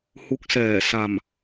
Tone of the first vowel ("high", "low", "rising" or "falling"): rising